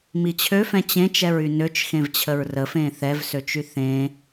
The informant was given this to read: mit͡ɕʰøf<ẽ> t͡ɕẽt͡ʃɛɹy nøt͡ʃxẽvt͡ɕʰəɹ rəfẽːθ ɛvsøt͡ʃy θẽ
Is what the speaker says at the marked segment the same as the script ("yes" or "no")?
no